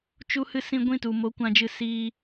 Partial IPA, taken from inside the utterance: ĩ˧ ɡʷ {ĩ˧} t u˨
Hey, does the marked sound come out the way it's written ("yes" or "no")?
no